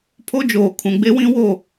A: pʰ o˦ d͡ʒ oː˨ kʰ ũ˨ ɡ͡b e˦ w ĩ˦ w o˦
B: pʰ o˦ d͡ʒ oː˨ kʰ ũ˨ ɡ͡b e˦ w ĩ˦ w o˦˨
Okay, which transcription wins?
B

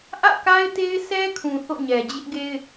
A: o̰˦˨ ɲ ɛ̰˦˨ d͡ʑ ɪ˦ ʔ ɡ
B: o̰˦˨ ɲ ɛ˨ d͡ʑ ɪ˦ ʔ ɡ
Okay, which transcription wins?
B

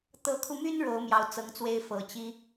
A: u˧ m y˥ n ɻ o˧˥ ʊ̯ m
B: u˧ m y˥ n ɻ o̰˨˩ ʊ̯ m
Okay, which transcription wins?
A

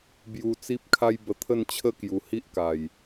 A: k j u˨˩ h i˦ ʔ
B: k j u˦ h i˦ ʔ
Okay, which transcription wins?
A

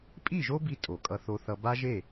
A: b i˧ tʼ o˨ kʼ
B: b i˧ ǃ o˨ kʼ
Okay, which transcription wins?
A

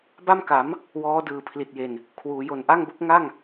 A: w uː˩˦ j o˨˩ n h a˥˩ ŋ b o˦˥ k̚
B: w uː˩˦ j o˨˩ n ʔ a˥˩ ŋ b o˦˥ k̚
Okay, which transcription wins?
B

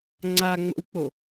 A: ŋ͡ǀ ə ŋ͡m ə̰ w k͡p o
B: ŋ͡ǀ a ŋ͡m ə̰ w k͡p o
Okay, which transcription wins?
B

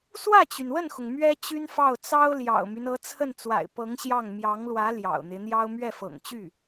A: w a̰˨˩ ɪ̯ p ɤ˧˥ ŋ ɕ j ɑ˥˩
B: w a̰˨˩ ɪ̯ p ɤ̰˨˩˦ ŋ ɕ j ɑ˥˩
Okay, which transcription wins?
A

